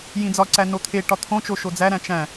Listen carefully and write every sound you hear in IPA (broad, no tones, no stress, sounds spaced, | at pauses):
j ĩ d͡z ɒ ǀ æ n o t̪ʰ e ʈ ɒ t̪ʰ õ t͡ʃ o ʃ o d͡z æ ɾ æ̃ t͡ʃ æ̃